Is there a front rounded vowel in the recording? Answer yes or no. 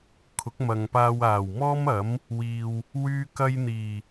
yes